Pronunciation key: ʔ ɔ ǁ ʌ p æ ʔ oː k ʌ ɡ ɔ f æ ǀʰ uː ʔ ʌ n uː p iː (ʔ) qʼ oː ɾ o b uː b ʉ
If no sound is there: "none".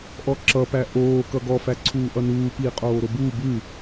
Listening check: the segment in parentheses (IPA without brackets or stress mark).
none